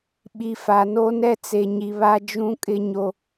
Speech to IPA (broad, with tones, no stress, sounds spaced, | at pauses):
ɓ i˨ f a˨ n o˦ n ɛ˦ t͡s e˨ ɲ i˨ β a˦ d͡ʒ ũ˦ kʼ ɪ˦ ɲ o˦